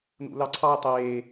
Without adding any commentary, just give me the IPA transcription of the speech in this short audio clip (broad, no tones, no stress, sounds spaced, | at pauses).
n ṵ l ɑ ǀʰ ɑ y̯ tˤ eː